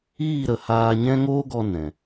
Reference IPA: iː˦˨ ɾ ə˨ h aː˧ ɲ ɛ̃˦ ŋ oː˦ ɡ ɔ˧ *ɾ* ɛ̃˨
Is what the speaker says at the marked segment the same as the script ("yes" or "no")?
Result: no